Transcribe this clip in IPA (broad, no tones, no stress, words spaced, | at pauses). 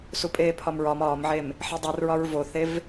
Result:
supʼeːpʰɒmɹɒm ɒːmʕem | ħedˤir ɹɒɹvoθev